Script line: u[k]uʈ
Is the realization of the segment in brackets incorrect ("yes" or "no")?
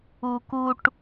no